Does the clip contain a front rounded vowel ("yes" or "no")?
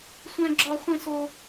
no